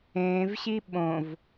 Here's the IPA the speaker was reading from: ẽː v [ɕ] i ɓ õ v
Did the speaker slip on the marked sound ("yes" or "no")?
no